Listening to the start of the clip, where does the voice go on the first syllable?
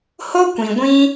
high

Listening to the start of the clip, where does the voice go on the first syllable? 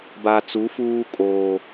low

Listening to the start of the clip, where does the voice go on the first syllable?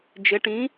rising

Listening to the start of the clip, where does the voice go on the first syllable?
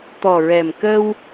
low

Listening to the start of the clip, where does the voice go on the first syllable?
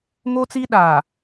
high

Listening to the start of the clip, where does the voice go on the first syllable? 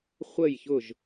falling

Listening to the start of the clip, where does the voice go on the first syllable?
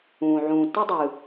low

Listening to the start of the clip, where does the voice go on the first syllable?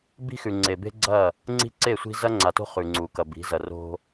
high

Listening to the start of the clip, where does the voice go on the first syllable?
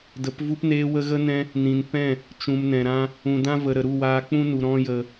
rising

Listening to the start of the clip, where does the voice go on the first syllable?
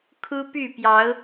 high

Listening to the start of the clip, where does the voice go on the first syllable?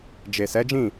low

